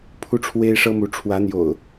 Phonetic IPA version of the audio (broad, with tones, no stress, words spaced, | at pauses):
pʰu˦ʈ͡ʂʰwe˦ɪ̯ʂɤ˦mu˨˦ ʈ͡ʂʰwä˨˦n̪jo̰˨˩ʊ̯